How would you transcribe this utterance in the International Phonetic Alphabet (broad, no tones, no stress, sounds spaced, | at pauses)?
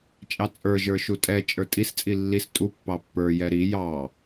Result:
t͡ʃʼ ɑ t͡sʼ ə˞ ʒ ə˞ ʃ u tʼ ɛ t͡ʃʼ ə˞ tʼ i s t͡sʼ i lː i s tʼ u pː ɑ pː ə˞ j ɛ ɾ i j ɑ